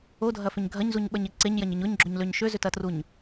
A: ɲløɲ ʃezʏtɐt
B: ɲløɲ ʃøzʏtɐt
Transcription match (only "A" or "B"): B